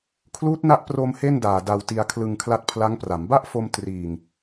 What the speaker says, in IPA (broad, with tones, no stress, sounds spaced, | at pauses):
kʰ l uː˦˥ t̚ n a˦˥ ʔ p r o˧ m h e˥˩ n d aː˨˩ d a˧ w t i˧ a̯ kʰ l ɯ˧ ŋ kʰ l a˦˥ t̚ pʰ l a˦˥ ŋ p r a˩˦ m b a˥˩ ʔ f o˧ m t r iː˨˩ ŋ